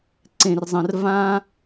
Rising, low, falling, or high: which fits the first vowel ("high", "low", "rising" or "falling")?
low